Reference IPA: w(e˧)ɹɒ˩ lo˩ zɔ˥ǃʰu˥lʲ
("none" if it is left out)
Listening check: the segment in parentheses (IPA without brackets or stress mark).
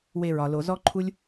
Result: e˧